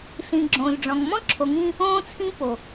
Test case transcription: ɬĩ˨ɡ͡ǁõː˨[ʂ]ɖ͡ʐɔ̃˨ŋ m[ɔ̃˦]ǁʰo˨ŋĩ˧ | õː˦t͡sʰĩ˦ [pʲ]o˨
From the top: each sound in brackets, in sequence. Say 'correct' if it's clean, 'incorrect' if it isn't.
incorrect: z, correct, incorrect: p

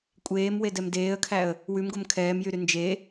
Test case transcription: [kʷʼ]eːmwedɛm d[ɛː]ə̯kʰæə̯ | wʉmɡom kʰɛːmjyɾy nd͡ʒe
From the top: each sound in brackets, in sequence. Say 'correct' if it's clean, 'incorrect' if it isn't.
correct, incorrect: eː

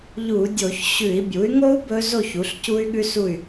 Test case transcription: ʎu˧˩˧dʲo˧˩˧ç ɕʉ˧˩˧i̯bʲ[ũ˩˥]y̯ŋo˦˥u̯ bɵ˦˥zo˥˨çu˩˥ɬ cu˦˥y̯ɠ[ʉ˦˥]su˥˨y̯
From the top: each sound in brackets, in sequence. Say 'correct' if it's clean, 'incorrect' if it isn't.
incorrect: u˩˥, correct

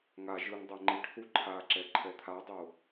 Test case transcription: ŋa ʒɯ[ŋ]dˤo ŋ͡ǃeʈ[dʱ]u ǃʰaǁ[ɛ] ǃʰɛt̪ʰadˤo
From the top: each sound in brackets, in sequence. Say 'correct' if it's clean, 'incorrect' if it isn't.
correct, incorrect: θ, correct

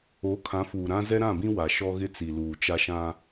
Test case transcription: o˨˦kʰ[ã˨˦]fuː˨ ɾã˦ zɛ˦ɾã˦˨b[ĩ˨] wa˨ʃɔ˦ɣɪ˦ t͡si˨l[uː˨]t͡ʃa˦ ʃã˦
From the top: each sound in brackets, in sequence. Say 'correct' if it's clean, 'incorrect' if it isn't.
correct, incorrect: ĩ˦, correct

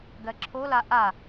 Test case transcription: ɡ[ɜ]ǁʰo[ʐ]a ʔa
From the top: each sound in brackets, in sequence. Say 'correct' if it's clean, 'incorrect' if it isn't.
correct, incorrect: l

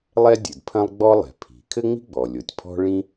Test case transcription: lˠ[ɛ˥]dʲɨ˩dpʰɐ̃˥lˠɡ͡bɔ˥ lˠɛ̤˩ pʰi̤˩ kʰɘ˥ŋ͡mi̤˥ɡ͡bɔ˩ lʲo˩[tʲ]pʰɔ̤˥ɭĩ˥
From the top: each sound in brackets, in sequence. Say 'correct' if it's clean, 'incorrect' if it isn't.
correct, correct

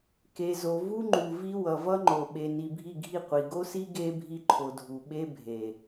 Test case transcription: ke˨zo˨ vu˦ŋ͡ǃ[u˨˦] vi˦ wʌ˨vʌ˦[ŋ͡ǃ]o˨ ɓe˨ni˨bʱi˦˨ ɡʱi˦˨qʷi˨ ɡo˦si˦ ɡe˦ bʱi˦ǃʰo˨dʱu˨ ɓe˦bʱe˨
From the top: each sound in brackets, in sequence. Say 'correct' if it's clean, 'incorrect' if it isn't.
incorrect: u˨, correct

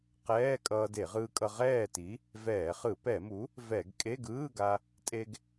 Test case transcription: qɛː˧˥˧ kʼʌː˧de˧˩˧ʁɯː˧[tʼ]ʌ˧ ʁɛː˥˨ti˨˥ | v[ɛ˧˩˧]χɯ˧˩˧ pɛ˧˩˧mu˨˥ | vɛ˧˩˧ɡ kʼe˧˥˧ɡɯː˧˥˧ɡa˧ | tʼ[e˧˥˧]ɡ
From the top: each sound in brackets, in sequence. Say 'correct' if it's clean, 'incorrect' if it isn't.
incorrect: kʼ, incorrect: ɛː˧˩˧, incorrect: e˧

